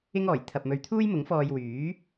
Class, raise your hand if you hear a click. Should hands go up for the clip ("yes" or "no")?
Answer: no